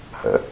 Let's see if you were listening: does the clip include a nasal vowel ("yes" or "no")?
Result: no